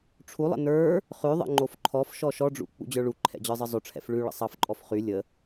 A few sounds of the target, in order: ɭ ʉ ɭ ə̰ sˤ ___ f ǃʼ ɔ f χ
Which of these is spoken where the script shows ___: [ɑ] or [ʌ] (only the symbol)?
ɑ